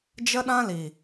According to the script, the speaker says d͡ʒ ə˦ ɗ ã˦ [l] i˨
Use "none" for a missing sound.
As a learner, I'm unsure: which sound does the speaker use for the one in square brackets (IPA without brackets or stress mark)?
l